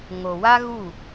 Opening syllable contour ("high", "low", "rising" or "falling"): low